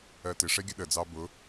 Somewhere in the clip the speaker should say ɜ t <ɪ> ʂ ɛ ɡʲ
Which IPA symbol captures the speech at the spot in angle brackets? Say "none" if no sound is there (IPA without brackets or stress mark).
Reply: ɪ